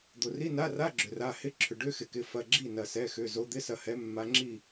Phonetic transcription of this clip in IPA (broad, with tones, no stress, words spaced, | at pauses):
d̪o˩ri˧˥˧na˧˥˧ra˧˥˧ ɡ͡ǁʏ˩ra˩˧˩ hɪ˧˥˧ǁʰʏ˩ ɖʏ˧˥˧xɪ˩kɪ˩˧˩ fɐ˩˧˩ɡ͡ǁi˥˩ nɐ˩sɛ˩˧˩xʏ˩˧˩ zo˨˦d̪ɪ˧˥˧sɐ˨˦hɛ˨˦ mːa˨˦ŋ͡ǁi˥˩